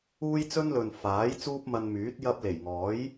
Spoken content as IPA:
uː˥ j t͡s ɵ˥ n l ɵ˨ n f aː˨˥ j t͡s uː˥ p̚ m ɐ˧ n m yː˨˥ t̚ j ɐ˧ p̚ l e˨˩ j ŋ ɔː˨˥ j

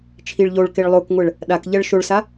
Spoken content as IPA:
t͡ʃʰ i ɭ ʎ o ɭ k e ɭ lˠ o k ŋʷ ɛ ɭ | ɗ a k ʎ ɛ ɭ ʃ o ɭ s a

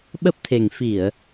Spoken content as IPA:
ɓ ə˦˥ p̚ t̪ʰ e˨˩ ŋ f i˧˩˨ ə̯

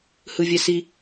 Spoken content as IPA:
h ɯ vʲ ɛ s i

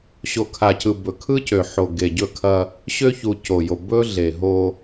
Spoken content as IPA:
ɕ o˨ kʰ a˨ c ɯ˨ b ɵ˨ kʰ ɯ˦ c ø˨ ħ o˨ ɡ e˨ ɟ ɵ˦˨ kʰ ɐ˦ | ɕ ø˦ ç u˨ c o˨ j o˨ b ɵ˦ ɮ e˨ ɦ o˦

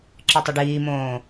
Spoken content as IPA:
ǁ ɨ tˤ ʏ ɖ iː m õː

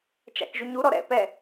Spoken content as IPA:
t͡ʃ a̰ k ʒ y ɲ u ɾ ɔ ɾ ɛ̰ p ɛ

